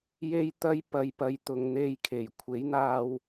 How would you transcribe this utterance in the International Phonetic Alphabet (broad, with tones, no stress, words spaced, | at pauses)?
je˥jt̪ɐ˥j pɐ˧jpɐ˧j t̪ʊ˨ŋn̪e˧jkʰe˨˩j kʷʰe˨˥jn̪aː˧w